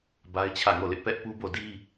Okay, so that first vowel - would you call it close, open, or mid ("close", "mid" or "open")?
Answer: open